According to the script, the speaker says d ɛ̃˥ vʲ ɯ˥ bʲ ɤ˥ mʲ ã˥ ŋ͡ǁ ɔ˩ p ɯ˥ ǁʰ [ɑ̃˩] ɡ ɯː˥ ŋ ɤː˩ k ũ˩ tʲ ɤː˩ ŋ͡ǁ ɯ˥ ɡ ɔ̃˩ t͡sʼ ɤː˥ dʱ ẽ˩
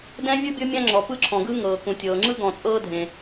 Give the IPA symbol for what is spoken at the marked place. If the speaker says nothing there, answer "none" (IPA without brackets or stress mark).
ɔ̃˩